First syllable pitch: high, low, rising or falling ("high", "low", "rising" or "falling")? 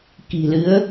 low